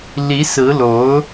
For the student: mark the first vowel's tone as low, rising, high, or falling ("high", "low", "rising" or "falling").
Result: rising